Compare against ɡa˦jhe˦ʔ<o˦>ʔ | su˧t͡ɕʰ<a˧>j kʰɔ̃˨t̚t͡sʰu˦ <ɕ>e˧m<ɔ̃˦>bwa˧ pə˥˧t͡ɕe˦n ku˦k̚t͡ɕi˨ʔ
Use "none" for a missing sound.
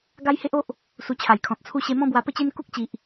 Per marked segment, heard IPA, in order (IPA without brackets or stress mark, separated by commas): o˦, a˨˩, ɕ, ɔ̃˦